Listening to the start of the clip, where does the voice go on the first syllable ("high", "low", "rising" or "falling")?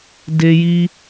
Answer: high